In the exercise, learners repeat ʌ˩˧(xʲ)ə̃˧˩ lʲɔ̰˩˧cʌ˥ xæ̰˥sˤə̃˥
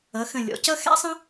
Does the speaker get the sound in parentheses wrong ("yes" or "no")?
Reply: yes